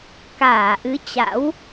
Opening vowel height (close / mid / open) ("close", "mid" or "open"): open